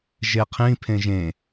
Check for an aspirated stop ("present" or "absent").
present